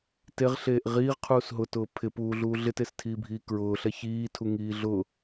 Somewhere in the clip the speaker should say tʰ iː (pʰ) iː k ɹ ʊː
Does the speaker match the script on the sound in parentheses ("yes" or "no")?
no